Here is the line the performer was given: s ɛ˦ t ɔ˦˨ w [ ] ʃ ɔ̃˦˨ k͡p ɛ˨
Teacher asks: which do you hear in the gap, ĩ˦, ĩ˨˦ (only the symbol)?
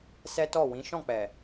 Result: ĩ˨˦